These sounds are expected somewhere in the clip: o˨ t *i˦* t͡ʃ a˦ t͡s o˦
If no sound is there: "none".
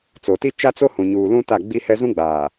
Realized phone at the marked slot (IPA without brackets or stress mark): i˦